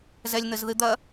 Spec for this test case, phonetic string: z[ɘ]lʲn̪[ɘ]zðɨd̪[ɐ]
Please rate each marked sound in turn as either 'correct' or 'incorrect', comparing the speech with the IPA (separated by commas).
incorrect, correct, correct